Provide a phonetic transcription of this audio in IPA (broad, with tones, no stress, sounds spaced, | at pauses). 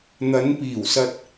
n̪ ɐ˨˧ n p iː˨˩ w s ɐ˧ t̚